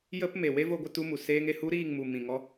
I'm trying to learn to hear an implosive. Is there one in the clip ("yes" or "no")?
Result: no